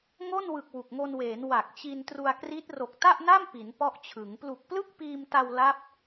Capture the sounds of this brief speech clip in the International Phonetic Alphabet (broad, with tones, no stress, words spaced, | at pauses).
ŋo˥˩nwɯ˨˩k̚ wu˨˩k̚ŋo˧nweː˩˦n wa˨˩k̚t͡ɕi˧ntru˧a̯kri˦˥t̚ ro˨˩k̚ta˥˩ʔna˥˩m pi˩˦npɔ˦˥ʔt͡ɕʰɯ˩˦ŋ plu˨˩k̚plɯ˥˩k̚piː˧mta˧w la˦˥p̚